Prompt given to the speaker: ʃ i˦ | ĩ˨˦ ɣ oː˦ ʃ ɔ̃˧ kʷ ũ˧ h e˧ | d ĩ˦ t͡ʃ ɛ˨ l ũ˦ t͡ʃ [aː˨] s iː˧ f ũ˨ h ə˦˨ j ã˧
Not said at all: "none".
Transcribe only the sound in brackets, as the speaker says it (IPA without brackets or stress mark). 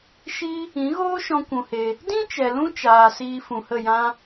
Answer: aː˨